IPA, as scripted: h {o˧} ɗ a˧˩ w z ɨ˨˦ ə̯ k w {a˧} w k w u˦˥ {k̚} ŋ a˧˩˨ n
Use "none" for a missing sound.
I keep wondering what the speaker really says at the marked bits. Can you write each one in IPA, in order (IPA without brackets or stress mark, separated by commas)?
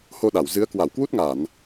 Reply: o˧, a˧˩, t̚